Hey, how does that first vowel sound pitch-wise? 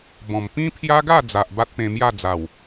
low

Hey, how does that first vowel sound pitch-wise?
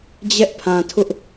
high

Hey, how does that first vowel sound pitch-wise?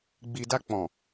low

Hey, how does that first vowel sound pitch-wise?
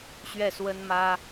falling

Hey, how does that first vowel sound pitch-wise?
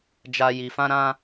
high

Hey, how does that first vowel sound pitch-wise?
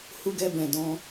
high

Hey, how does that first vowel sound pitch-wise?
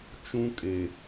high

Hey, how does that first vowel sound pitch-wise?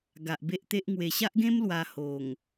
low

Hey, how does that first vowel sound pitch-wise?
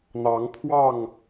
rising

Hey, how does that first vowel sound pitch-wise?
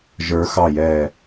rising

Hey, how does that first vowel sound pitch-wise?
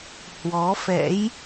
rising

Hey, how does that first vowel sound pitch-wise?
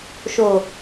low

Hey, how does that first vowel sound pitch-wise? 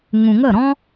low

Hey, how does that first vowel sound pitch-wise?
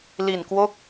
low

